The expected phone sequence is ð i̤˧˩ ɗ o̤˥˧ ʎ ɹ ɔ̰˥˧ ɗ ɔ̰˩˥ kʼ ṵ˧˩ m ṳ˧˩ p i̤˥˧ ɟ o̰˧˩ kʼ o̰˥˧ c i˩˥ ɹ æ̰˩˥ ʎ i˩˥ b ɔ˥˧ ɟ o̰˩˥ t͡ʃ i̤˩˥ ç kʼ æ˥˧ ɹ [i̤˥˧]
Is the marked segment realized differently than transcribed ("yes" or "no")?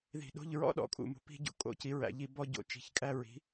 yes